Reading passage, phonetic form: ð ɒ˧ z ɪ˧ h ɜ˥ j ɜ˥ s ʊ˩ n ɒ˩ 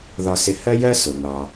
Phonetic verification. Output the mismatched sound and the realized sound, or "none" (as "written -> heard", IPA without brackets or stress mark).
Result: z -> s